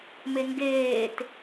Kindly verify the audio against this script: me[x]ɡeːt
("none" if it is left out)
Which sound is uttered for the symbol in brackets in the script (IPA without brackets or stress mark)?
ŋ